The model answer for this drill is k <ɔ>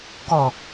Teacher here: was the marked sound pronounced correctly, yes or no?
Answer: yes